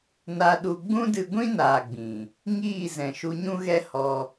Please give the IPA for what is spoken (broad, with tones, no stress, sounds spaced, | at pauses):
n a˧ ɗ u˧ ɡ͡b ũ˦ d ɨ˧ ɡʷ ĩ˦ n aː˨ ɡ͡b ĩ˨ | ŋ iː˦˨ z ɛ̃˨ ʃ u˧ ɲ ũ˦ ɣ ɛ˦ h ɔ˧